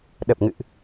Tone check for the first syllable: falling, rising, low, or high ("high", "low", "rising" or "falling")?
low